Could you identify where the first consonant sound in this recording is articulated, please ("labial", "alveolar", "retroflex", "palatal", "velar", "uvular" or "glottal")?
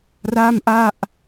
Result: alveolar